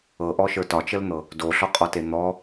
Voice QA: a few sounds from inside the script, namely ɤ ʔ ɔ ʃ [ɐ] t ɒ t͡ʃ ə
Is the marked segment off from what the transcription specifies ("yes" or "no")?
yes